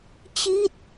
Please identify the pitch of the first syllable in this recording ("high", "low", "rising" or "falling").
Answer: falling